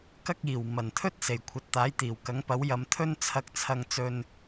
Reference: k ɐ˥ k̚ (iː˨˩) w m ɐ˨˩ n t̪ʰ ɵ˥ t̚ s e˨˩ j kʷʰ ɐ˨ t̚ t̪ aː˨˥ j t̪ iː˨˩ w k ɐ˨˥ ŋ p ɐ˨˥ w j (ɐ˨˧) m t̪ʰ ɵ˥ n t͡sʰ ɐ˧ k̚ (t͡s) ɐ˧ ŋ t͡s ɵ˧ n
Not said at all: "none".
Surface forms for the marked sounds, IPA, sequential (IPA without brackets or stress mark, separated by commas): iː˨˩, ɐ˨˧, t͡sʰ